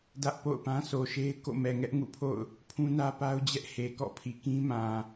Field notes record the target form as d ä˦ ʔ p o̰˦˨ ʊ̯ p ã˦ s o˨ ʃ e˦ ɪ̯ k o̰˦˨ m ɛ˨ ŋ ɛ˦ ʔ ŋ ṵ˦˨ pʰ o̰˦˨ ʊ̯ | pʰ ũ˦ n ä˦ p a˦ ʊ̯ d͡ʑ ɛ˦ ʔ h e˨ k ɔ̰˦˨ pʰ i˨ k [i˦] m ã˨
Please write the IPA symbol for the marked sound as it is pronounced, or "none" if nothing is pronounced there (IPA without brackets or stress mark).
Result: ĩ˦